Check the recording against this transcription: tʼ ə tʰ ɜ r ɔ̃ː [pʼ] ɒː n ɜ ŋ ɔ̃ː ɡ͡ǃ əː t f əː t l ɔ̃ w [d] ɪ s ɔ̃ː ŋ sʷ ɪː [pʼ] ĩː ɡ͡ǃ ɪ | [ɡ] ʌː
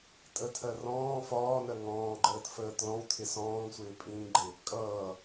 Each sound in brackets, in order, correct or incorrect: incorrect: f, incorrect: tʰ, correct, incorrect: kʼ

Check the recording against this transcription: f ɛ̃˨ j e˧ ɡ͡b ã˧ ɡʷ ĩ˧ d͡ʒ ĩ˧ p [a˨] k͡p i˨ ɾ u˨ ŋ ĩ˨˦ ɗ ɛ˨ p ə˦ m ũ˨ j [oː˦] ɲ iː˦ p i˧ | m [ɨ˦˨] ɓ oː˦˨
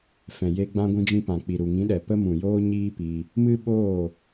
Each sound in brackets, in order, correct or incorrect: incorrect: ã˨, correct, incorrect: ɨ˦

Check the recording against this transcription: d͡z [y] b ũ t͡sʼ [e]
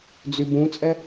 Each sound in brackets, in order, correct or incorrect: correct, incorrect: ɛ

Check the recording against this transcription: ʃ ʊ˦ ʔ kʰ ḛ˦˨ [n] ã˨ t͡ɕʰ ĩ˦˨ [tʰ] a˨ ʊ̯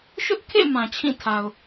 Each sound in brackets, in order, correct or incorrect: incorrect: m, correct

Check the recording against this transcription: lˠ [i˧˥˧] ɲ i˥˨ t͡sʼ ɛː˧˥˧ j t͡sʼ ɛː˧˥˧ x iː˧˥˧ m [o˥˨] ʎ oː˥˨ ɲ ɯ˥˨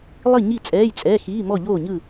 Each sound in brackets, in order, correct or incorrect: incorrect: i˥˨, incorrect: ɔ˥˨

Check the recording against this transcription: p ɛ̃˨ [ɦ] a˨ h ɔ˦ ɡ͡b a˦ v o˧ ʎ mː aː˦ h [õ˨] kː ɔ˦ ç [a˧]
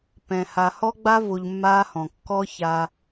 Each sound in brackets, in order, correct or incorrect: incorrect: h, incorrect: ɔ̃˨, correct

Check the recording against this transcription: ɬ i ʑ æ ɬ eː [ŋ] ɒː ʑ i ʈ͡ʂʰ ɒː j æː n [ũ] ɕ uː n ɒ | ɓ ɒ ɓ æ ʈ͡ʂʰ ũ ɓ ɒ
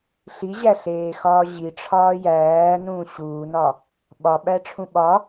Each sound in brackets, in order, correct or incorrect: incorrect: x, incorrect: ũː

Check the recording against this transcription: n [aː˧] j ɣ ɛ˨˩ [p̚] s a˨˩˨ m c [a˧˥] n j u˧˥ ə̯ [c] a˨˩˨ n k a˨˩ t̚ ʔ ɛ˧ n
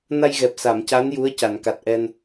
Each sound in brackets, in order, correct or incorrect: incorrect: a˧, correct, correct, correct

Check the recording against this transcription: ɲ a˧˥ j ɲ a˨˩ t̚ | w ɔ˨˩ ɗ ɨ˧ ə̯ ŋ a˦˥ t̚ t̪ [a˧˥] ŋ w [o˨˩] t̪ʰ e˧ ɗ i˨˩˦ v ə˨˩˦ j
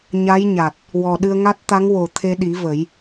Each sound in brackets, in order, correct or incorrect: correct, correct

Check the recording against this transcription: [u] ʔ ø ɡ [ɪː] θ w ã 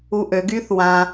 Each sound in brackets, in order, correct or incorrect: correct, incorrect: yː

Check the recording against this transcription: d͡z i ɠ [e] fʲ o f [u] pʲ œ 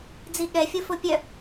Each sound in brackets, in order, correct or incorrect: incorrect: ɛ, incorrect: o

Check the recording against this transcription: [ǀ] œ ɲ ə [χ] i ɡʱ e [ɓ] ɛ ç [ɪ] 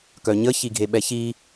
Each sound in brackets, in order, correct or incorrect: incorrect: k, incorrect: ç, correct, incorrect: i

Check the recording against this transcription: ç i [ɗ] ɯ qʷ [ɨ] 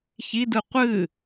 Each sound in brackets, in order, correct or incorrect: incorrect: d, correct

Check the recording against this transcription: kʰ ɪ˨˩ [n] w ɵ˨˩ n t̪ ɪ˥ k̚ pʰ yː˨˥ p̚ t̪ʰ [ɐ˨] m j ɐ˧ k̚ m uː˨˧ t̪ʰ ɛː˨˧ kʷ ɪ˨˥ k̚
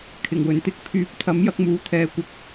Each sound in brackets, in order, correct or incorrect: incorrect: ŋ, incorrect: ɐ˨˥

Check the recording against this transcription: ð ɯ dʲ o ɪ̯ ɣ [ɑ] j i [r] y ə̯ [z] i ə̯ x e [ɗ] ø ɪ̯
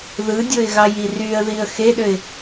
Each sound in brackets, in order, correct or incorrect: correct, correct, incorrect: ð, correct

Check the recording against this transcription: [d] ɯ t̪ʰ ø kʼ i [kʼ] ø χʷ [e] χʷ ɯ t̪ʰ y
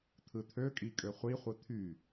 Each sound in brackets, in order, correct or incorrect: incorrect: t̪ʰ, correct, incorrect: i

